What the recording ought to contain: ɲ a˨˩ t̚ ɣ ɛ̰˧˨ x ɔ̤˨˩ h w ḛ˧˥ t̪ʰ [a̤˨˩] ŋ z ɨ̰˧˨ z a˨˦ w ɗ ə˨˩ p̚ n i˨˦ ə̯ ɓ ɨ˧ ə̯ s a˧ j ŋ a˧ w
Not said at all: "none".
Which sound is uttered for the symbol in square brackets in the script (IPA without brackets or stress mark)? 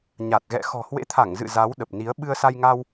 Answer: a˧˩